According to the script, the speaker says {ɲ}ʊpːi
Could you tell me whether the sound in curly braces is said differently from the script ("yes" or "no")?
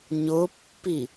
no